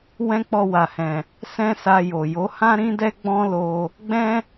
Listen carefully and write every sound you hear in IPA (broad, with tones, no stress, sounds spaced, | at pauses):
w ɛ̃˦ k͡p ɔ˧ w a˨ h ɛ̃˨ | s ɛ̃˦ s a˧ j o˨ j o˨˦ h ã˦ ɾ ĩ˦ d ɛ˦ ɡ͡b ɔ̃˦ l o˧ | ɡ͡b ɛ̃˦